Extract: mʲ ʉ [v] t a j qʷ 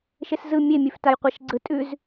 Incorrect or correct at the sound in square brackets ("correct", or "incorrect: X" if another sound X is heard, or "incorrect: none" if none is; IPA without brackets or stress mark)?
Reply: incorrect: f